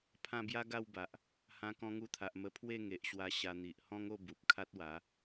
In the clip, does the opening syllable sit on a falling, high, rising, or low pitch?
falling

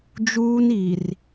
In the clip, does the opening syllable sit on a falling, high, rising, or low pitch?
high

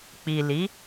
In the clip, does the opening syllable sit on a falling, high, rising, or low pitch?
low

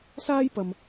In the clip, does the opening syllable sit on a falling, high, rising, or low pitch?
high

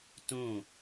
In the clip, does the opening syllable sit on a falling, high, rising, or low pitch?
falling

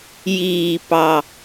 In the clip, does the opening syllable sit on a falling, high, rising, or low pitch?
low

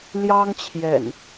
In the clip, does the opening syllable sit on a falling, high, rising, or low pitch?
high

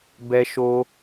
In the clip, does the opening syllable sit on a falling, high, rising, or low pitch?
high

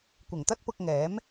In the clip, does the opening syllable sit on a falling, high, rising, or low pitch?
low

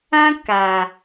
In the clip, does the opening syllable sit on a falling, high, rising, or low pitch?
high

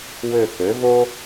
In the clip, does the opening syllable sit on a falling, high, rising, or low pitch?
falling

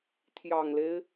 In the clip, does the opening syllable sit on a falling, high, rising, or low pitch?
low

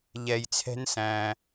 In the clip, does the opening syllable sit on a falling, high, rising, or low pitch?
low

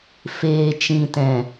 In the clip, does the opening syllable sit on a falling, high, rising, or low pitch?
low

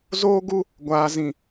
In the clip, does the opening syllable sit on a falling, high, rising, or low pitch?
high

